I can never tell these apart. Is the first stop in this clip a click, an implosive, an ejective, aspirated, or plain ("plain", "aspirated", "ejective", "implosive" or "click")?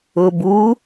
plain